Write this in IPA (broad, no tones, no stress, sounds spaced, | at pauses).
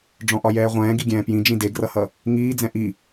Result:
ɖ͡ʐ ɔ̃ ʔ ɒ j ɛː ʁʷ ɛ̃ː ɡ i ɡʲ ɛ̃ː p j ĩ d͡ʒ ĩ d e ɡ r ʌ h ʌ | ŋ iː d͡z ɛ̃ ʔ i